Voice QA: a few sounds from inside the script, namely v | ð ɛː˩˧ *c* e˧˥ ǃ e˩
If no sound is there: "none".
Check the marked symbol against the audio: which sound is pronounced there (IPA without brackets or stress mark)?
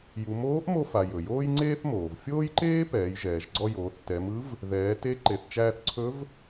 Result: t